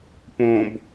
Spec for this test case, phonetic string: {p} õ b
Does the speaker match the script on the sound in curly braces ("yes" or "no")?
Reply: yes